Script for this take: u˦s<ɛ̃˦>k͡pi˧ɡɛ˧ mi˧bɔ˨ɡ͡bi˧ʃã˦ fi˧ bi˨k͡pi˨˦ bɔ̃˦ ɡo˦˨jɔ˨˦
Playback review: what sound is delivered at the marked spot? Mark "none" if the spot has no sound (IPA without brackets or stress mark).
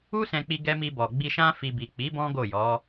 ɛ̃˧